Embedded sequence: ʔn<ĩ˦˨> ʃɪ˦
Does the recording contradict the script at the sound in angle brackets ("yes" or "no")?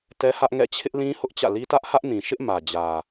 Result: yes